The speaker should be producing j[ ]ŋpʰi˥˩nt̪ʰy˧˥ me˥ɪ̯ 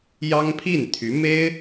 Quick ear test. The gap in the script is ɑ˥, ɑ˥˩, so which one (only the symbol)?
ɑ˥